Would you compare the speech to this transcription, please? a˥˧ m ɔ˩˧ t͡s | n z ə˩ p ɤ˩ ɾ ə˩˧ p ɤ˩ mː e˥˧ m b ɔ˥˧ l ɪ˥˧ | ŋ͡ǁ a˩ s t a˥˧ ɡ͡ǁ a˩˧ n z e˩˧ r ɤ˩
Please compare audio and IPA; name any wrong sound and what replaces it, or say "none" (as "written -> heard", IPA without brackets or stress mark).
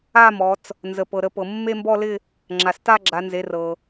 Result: none